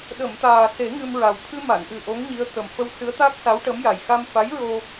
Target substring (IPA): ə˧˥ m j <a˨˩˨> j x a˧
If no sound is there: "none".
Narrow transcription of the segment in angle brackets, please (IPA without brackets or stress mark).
a˨˩